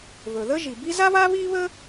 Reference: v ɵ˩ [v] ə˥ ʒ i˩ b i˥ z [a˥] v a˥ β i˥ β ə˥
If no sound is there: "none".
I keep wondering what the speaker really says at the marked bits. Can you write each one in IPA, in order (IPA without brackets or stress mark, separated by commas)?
ð, a˥